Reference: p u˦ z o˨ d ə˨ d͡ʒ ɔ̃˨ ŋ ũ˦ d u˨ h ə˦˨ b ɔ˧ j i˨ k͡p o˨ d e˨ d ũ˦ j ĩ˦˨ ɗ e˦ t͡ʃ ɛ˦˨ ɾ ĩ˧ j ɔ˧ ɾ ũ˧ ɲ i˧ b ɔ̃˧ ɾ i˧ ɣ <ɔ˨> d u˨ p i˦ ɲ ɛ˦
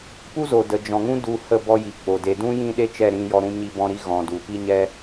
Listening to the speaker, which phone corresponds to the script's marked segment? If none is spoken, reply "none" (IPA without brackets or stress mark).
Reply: ɔ̃˨